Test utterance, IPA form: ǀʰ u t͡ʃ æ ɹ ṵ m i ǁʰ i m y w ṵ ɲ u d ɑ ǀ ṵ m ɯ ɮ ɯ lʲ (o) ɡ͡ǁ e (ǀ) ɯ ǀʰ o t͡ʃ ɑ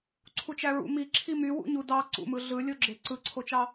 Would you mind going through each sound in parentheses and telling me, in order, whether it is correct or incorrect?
correct, correct

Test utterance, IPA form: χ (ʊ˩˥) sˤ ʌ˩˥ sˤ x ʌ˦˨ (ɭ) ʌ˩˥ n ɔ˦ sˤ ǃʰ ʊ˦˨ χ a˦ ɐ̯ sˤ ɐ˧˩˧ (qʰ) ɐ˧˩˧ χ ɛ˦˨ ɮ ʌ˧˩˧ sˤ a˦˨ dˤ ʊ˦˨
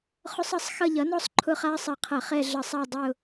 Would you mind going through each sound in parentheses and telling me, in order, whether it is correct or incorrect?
incorrect: ʊ˦, incorrect: ʎ, correct

